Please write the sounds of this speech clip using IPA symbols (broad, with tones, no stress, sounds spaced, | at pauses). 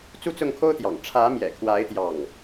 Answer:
t͡s u˥˧ t͡s ʊ˥˩ ŋ kʰ o˥ ʊ̯ t̪ j ɑ̰˨˩ ŋ ʈ͡ʂʰ ä˧˥ m j ɛ̰˨˩ kʰ w a˧˥ ɪ̯ t̪ j ɑ˥˩ ŋ